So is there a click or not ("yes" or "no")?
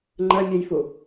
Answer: yes